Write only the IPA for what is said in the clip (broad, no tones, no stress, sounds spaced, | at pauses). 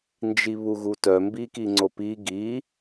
n d͡ʒ i β u ɣ u t œ m b i k i ŋ͡ǀ o p i ɡ i